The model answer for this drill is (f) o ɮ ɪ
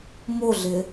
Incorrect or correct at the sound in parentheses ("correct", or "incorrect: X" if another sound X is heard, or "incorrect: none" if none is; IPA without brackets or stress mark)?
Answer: incorrect: m